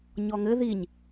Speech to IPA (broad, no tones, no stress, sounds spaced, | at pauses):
ɲ ɔ ŋ ɘ ð i ɲ